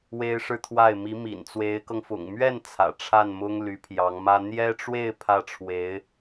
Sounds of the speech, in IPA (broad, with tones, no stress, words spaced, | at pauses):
we˥ɪ̯ʂɻ̩˥˧t̪ʰwa˥˩ɪ̯ mi˧˥mḭ˨˩nt͡swe˧˥ɪ̯kɤ˧ŋ fʊ̰˨˩ŋ mɥɛ˥˩n t͡sʰä̰˨˩ʈ͡ʂʰa˥˩nmʊ˥ŋ ly˧˥pʰjɑ˧˥ŋmä˥ n̪jɛ˥ʈ͡ʂwe˥˧ɪ̯ pʰä˥˩ʈ͡ʂʰwe˧˥ɪ̯